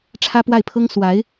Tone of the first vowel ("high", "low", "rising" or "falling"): high